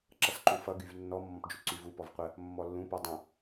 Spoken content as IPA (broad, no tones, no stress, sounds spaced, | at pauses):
ǁ ʌ s ǃ u f ʌ ɡ y v nː ɔ mː ɔ̃ p d͡ʒ u ǀ y v u p ɔ v qʷ ə | mː ɔ lː ũ p u dˤ ə̃